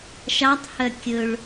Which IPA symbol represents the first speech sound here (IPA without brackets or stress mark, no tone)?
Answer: ʃ